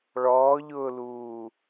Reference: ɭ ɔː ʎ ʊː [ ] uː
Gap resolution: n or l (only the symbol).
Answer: l